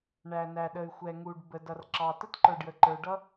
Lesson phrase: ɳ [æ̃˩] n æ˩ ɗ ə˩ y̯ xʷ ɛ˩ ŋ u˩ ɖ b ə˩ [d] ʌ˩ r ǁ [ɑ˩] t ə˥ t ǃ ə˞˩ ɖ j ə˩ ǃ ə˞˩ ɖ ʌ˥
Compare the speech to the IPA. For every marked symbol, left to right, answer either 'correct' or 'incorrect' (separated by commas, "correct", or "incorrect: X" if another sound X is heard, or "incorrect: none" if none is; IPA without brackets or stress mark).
incorrect: æ˩, correct, correct